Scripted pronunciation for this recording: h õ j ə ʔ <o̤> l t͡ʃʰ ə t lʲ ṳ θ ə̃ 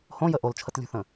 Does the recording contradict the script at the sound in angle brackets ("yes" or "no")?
yes